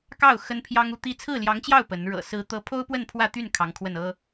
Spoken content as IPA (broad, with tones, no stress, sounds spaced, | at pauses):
k ɑ˥˩ ʊ̯ x ə˥ n pʰ j ɑ˥ ŋ u˥˧ t̪ i˥˧ t͡sʰ ɹ̩˥˩ l j ɑ˧˥ ŋ t͡ɕ j ɑ˥˩ ʊ̯ p ə˧˥ n ɻ ɤ̰˨˩ s ɹ̩˧˥ t̪ ɤ˧˥ pʰ o˥ ʊ̯ p w ə˥˧ n pʰ w ä˥˧ t̪ y˥˩ n kʰ ɑ˧˥ ŋ kʰ w ə˥˩ n ɤ˥